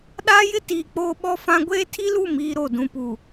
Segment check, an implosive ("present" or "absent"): present